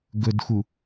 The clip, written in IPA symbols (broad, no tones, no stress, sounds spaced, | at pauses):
ɡ ɵ d x u